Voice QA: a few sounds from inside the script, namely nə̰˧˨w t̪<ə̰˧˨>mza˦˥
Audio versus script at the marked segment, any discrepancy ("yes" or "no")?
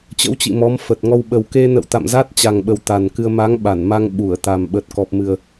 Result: yes